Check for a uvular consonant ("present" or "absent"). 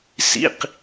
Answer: present